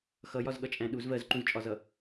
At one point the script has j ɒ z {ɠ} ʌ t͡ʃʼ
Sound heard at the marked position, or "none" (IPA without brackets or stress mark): ɠ